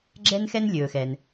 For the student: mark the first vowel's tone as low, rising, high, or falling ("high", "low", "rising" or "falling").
high